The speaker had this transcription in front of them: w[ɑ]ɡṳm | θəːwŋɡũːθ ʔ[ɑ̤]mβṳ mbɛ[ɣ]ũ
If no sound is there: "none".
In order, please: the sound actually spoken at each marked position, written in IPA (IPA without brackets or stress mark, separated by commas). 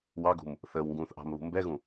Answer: ɑ, ɑ̤, ɣ